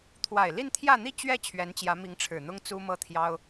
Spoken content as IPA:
t̪ʰ w a˨˩ ɪ̯ l i˥˧ n t̪ʰ j ä˥˧ n̪ i˥˧ t͡ɕ ɥ ɛ˥˩ t͡ɕʰ ɥ ɛ˧˥ n t͡ɕ j ä˧˥ m i˧˥ ŋ ʈ͡ʂʰ ɻ̩˨˩ n̪ ʊ˥ ŋ t͡s u˥ m ɤ˥˩ t̪ʰ j ɑ˥ ʊ̯

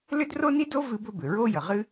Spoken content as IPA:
l ʏ˥ d r o˥ n i˥ d o˥ v ɨ˥ b ɵ˥ b ʏ˩ ɹ o˥ j ə˩ ʁ ɨ˥

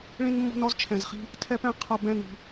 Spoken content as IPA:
ɭ ĩ˦ n mː ɔ̤˦ n ɔ˦ z t͡ʃʰ ɛ̃˨ z χ i̤˦ | tʰ ɛ˦ p ɛ̃˦ qʰ ʌ˨ b ɛ̃˦˨ n ɾ i̤˨

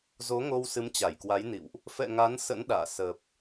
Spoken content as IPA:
z o˨˦ ŋ o˧ w s ɨ˨˦ m t͡ɕ a˧˩ j k w a˨˦ j n ḭ˧˨ w ʔ | f ɛ̰˧˨ ŋ a˨˦ n s ə̰˧˥ n ɗ a̰ː˧˨ s ə˨˩ p̚

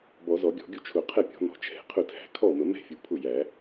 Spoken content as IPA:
b ɔ˨˩˦ z ɔ˨˩˦ ɡʲ ɔ̤˨˩˦ ɡʲ u˥˩ t͡ʃʰ ʊ˨˩˦ qʰ ɛ˥˩ pʲ ɔ̤˨˩˦ n ɔ̤˨˩˦ t͡ʃʰ ɛ̤˨˩˦ qʰ ʊ˥˩ tʰ æ̤˨˩˦ kʰ ɔ˥˩ m ə˨˩˦ m ɛ̤˥˩ fʲ u˨˩˦ pʰ ʊ˥˩ j æ˨˩˦

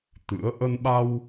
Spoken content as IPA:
t̪ ɨ̰˧˥ ə̯ ʔ ə˧ n ɓ a˧ w

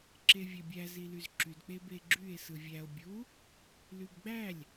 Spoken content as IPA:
ǁ e vʲ æ bʲ æ z i l y z ǁ y d k͡p e b e ɡ͡ǁ y e̯ s ɯ vʲ æ o̯ bʲ u | l y b ɡ͡b æ lʲ

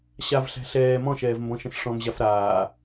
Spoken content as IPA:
ɕ a v ɬ æ̤ ɬ ɛː m ɔ̃ ʃ ɛː v m b ɔ̃ ʃ ə̃ s ʂ ɔ̃ m ʑ a f ɾ aː

